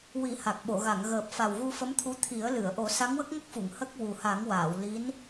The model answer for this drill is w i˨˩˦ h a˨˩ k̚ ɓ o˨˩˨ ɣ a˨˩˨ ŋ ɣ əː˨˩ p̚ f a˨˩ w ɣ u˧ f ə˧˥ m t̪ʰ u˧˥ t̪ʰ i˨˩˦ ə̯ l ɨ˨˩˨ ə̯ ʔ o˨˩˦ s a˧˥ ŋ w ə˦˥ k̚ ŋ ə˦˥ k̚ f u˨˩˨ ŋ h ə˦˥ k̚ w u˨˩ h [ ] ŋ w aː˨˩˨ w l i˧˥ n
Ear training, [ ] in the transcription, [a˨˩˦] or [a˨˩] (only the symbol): a˨˩˦